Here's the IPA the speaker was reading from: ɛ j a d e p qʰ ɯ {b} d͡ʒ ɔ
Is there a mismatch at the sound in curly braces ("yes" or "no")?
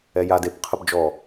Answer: no